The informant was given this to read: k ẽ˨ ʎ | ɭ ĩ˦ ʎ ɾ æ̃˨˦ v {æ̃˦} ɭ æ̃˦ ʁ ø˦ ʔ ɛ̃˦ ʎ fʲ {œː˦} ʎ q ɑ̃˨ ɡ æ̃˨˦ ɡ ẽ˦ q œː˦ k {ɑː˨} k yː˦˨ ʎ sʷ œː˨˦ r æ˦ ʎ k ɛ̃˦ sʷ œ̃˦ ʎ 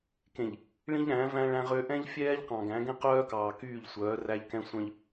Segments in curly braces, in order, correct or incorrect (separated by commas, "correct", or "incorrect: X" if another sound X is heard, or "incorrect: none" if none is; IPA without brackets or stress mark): correct, incorrect: ɛː˦, correct